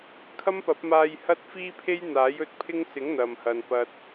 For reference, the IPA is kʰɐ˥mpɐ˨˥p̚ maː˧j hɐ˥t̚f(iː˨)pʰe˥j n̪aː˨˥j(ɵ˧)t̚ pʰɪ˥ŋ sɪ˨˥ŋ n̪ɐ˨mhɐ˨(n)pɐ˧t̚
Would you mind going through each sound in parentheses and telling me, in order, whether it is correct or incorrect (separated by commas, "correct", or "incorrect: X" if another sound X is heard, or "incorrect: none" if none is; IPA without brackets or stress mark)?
incorrect: iː˥, correct, correct